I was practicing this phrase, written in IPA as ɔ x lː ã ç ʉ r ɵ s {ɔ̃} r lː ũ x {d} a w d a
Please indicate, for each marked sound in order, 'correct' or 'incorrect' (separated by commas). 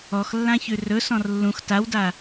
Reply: correct, incorrect